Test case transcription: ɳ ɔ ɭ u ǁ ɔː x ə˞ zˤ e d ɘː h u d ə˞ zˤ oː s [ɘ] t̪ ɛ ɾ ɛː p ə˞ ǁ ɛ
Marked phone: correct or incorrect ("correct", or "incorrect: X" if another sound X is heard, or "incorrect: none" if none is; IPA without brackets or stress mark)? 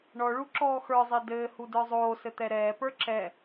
correct